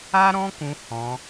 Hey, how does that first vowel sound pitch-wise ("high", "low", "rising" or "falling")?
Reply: high